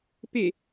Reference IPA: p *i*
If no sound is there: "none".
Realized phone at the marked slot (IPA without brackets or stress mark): e